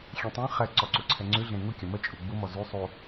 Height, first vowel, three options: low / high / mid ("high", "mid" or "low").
mid